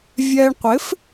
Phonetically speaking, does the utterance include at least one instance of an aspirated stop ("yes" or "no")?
no